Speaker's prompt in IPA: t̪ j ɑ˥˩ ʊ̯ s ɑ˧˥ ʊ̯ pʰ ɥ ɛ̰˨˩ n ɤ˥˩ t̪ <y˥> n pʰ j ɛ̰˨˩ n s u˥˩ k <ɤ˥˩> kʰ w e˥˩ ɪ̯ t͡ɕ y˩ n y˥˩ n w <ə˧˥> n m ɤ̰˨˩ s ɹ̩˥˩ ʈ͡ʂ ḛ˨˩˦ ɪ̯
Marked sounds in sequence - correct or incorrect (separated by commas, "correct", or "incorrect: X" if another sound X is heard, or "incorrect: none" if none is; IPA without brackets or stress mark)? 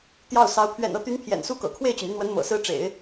incorrect: y˧˥, incorrect: ɤ̰˨˩, correct